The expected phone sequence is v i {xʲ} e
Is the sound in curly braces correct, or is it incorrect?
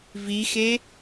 incorrect